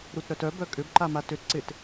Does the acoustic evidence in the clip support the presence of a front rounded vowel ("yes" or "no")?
yes